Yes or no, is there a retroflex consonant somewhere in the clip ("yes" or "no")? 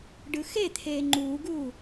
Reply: yes